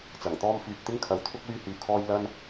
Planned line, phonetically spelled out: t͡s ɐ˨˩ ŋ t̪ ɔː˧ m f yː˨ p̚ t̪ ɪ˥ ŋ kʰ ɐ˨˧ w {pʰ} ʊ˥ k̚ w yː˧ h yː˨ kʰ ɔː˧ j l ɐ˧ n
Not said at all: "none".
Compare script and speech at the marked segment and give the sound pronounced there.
t̪ʰ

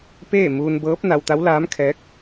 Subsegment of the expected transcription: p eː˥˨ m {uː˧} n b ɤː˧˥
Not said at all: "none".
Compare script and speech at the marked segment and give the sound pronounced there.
uː˧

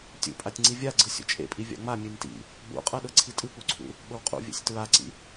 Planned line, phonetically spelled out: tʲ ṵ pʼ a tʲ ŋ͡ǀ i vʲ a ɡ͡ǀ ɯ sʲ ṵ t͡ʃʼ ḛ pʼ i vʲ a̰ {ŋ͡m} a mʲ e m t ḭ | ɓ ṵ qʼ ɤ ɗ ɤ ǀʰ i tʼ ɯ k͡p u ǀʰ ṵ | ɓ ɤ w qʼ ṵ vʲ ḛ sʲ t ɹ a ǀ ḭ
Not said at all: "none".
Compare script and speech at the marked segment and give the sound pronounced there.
ŋ͡m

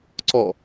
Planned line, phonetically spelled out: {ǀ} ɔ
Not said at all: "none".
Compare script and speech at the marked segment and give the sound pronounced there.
ǀ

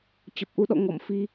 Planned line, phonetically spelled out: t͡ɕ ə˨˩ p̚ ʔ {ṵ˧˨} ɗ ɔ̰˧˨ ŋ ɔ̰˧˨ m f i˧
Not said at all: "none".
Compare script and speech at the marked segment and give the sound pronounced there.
u˧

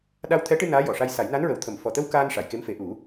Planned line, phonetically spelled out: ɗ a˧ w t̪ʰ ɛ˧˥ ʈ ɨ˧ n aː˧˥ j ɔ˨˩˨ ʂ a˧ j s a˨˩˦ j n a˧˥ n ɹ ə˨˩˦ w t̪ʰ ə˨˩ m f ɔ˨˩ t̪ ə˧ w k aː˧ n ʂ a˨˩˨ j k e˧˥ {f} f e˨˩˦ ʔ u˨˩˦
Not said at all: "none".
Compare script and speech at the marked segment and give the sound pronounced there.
m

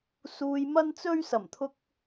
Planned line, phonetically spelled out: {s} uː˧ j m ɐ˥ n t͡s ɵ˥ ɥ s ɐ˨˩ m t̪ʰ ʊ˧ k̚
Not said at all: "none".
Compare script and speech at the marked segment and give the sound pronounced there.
s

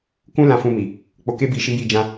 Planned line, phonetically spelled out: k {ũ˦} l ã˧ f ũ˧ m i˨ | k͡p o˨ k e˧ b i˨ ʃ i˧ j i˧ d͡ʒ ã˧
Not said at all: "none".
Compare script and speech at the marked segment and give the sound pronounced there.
ũ˦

